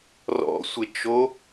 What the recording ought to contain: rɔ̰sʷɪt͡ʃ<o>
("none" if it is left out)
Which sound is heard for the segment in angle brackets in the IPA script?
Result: o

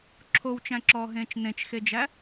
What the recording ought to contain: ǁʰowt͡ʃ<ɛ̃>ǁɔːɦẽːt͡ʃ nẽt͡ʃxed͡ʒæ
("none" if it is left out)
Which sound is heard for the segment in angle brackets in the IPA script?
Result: æ̃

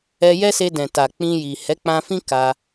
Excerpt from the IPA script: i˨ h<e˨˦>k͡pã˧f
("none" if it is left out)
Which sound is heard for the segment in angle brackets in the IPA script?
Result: ɛ˨˦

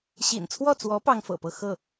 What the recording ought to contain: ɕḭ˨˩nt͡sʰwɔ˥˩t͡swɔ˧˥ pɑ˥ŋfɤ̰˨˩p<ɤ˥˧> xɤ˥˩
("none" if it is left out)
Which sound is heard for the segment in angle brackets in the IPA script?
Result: ɤ˥˧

